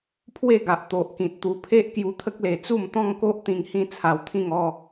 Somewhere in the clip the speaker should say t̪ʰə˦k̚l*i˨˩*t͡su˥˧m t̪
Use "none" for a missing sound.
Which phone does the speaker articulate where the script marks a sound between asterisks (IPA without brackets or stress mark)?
e˨˩